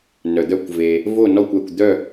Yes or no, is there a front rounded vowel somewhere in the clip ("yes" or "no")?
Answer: yes